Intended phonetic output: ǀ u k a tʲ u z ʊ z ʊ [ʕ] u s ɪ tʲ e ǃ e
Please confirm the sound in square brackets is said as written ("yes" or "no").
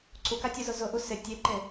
no